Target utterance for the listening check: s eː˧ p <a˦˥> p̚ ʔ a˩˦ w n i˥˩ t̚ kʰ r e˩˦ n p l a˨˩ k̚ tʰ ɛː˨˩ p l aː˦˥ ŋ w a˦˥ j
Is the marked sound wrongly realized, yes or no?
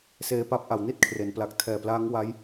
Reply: no